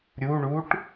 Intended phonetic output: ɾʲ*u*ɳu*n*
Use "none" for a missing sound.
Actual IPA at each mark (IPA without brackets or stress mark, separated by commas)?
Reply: u, ʈ